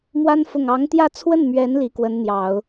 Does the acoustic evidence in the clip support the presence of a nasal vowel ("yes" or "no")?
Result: no